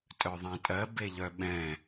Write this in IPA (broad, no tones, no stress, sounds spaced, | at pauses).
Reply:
tʼ œ ðˤ ɛ̃ tʼ ɜ b e ʎ œ ɓ ɛ̃